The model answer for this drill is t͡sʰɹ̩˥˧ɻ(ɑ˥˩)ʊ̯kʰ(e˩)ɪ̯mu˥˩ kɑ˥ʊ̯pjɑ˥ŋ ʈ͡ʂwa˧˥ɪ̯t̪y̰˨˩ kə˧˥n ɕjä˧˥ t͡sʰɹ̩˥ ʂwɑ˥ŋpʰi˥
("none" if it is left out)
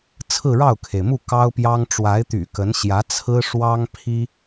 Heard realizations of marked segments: ɑ˥˩, e˩

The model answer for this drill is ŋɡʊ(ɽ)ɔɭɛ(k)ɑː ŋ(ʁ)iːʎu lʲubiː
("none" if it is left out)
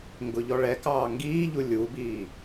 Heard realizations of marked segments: ʎ, k, ɡ

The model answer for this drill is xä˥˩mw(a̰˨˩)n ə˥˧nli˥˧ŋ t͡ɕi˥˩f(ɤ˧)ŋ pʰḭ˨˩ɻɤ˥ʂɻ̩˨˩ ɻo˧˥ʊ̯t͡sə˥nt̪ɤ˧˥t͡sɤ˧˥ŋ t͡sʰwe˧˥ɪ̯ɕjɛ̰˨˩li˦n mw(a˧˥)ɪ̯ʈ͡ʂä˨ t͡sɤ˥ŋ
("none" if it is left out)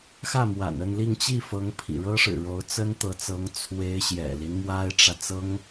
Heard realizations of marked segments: a̰˨˩, ɤ˧˥, a˥

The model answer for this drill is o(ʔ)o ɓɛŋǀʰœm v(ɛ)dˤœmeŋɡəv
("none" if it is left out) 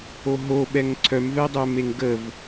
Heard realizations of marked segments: ɦ, ɛ

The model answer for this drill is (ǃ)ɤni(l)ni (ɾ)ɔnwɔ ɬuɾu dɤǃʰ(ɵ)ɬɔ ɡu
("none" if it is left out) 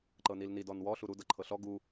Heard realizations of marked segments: ǃ, l, d, ɤ

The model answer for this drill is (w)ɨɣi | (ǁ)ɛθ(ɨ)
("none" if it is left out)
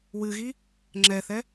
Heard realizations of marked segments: w, ŋ͡ǁ, ɛ

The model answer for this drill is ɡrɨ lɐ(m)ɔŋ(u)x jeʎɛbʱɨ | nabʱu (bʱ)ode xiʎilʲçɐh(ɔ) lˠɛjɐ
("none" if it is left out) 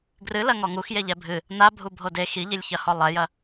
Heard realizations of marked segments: ŋ, u, bʱ, ɔ

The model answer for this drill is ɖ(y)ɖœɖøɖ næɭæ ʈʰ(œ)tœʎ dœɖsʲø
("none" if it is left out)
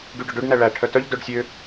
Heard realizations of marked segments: y, œ

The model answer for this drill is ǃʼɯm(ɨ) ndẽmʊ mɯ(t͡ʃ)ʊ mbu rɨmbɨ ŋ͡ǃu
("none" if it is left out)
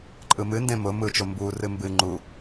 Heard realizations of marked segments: ɨ, t͡ʃ

